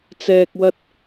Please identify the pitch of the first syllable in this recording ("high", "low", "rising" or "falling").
low